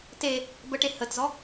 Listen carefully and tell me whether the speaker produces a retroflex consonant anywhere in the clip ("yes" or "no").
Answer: yes